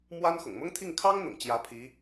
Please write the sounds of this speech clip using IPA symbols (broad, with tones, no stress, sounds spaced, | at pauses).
m w a˥ n x ʊ̰˨˩ ŋ m ʊ˥ ŋ t̪ʰ i˥˩ ŋ kʰ ɑ˥ ŋ n̪ ʊ̰˨˩ ŋ t͡ɕ j ä˧˥ pʰ i˧˥